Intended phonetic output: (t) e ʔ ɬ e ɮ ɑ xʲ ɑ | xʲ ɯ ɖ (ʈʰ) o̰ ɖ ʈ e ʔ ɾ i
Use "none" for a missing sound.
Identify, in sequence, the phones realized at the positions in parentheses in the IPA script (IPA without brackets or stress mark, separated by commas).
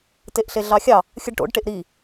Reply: t, ʈ